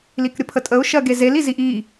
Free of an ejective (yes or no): no